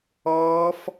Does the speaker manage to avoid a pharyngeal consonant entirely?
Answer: yes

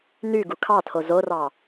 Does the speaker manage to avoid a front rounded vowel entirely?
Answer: no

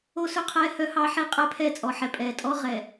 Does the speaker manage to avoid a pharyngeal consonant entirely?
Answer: no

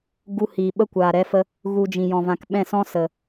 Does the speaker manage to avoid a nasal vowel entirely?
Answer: no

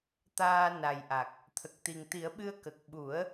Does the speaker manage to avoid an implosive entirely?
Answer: no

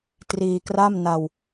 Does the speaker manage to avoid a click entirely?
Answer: yes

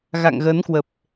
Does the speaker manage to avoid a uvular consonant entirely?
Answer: yes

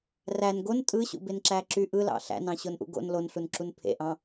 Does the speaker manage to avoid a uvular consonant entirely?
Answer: yes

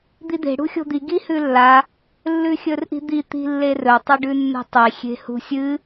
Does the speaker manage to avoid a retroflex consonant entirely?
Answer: no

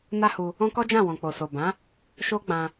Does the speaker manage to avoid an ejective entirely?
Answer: yes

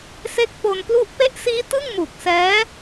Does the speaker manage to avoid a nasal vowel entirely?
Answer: yes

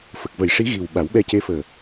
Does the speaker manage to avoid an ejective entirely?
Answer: yes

